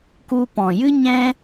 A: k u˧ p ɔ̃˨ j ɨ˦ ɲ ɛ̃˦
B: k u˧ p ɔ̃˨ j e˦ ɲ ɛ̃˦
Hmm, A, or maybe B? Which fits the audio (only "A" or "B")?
A